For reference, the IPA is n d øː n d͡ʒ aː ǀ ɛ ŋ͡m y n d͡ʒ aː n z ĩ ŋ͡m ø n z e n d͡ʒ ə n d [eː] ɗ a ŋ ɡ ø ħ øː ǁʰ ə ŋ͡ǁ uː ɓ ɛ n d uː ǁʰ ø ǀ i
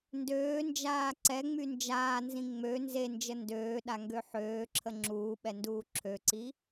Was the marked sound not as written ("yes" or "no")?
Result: yes